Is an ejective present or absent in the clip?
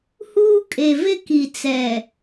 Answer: present